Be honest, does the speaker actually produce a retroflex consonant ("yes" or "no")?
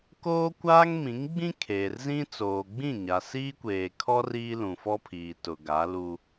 no